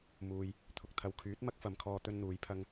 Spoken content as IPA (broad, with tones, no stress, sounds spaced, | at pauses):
m uː˨ j | t̪ʰ ʊ˨ k̚ t̪ʰ ɐ˨ w kʰ yː˨˥ t̚ m ɐ˥ k̚ f ɐ˨ m kʰ ɔː˧ t̪ ɵ˥ n n̪ uː˨˧ j pʰ ɐ˥ ŋ